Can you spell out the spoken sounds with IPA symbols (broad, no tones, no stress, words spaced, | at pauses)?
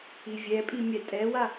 ivʲɛpʼi mʲɛtʼɛwa